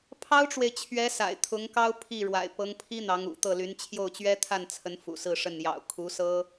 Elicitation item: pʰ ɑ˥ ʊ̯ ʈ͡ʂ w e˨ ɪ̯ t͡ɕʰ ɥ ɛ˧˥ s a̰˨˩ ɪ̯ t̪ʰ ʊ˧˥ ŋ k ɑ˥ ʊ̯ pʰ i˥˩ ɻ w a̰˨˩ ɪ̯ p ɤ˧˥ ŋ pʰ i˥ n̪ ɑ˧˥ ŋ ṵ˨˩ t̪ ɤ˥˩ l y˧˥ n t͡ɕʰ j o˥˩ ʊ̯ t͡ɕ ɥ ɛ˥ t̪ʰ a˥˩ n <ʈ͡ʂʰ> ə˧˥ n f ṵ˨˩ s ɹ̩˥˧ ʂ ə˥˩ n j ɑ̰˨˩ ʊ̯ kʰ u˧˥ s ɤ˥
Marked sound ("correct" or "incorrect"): incorrect